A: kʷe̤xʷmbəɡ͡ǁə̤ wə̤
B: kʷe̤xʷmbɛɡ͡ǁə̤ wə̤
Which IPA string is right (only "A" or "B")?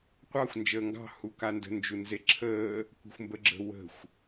A